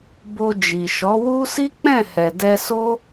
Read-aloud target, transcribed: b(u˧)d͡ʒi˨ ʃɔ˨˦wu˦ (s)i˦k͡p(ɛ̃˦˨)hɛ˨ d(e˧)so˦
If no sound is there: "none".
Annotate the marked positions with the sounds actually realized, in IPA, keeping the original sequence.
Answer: o˧, s, ɛ̃˦˨, ɛ˧

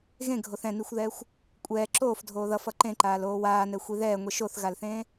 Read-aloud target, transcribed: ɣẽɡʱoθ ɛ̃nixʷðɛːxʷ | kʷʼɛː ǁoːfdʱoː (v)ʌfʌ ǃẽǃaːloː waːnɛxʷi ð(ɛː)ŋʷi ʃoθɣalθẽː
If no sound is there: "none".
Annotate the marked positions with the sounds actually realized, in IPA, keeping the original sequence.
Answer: ð, ɛː

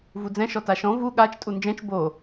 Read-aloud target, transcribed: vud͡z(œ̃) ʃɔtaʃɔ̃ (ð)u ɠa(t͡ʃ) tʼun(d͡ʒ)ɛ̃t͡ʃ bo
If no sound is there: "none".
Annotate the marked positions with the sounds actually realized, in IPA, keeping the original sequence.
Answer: ɛ̃, v, t͡ʃ, d͡ʒ

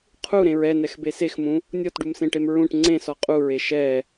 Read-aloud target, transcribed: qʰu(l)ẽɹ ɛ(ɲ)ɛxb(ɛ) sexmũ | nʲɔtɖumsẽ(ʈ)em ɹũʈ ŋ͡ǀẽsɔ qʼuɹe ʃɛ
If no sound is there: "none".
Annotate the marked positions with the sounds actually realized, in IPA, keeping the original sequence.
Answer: ɾ, n, e, ʈ

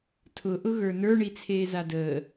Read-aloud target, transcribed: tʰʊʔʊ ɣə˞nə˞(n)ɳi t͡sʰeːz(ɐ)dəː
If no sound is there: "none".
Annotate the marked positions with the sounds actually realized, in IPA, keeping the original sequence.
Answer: none, a

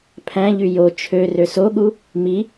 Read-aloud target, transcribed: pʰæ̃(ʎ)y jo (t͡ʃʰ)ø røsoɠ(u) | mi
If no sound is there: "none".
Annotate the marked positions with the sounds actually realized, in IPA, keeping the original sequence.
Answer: ʎ, t͡ʃʰ, u

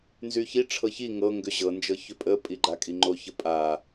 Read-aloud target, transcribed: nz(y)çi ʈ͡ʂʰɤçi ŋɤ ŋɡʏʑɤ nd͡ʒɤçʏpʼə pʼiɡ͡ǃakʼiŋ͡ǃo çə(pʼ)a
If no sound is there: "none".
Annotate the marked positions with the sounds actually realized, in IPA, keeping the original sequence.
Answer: y, pʼ

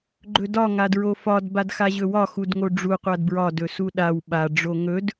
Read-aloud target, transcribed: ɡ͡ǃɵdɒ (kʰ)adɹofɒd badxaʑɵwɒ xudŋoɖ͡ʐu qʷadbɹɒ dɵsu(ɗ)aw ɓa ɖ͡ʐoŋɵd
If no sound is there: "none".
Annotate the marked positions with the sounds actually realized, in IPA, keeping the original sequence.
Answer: ŋ, ɗ

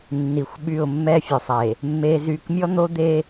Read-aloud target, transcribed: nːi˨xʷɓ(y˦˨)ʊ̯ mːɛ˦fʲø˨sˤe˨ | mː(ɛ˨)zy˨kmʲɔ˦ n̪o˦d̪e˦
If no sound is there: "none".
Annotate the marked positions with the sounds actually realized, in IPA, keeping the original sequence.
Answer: y˦˨, e˨

